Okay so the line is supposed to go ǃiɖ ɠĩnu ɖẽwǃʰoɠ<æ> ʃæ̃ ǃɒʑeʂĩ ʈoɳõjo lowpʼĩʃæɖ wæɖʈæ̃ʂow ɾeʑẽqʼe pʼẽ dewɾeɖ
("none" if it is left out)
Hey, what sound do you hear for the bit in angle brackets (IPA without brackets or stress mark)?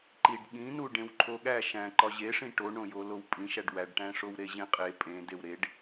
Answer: æ